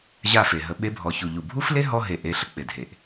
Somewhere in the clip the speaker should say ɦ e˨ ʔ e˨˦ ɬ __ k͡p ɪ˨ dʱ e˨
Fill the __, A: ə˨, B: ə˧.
A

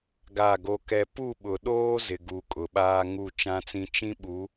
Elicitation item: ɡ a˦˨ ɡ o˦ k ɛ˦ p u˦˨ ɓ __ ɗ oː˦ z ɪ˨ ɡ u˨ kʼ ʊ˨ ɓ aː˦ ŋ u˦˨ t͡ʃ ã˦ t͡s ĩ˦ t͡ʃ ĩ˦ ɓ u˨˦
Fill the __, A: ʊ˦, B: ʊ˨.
B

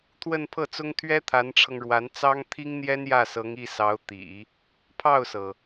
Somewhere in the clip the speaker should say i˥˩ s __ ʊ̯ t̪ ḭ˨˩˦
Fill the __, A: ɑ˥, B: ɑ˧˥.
B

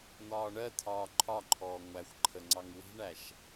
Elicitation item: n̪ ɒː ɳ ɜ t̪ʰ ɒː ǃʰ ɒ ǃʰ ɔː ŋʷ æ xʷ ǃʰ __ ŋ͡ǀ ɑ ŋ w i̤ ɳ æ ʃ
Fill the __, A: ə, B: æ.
A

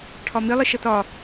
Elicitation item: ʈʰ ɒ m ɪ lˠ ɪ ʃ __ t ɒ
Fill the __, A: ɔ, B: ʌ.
B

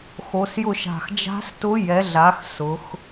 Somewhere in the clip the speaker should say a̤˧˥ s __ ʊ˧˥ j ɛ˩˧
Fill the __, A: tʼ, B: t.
B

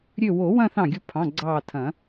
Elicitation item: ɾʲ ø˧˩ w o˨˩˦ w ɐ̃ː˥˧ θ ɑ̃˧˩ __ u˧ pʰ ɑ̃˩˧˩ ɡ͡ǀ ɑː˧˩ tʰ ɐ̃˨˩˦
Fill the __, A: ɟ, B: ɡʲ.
B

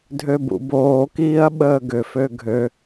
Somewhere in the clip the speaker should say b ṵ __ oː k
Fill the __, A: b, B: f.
A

